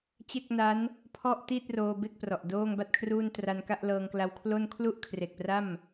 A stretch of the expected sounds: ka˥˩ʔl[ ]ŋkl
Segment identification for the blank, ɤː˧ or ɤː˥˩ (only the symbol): ɤː˧